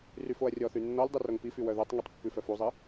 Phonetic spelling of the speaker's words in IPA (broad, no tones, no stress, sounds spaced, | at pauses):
r y f o ɐ̯ rʲ ɔ θ y nː ɔ lʲ dˤ y r o ŋ p i f y w œ ð u tˤ ŋ i tˤ pː ʉ f œ f u zˤ i